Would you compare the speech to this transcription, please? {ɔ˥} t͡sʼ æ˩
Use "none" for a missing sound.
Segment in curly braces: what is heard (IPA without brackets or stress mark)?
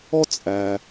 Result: ɔ˥